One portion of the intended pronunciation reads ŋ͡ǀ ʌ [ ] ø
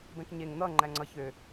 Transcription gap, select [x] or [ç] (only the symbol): ç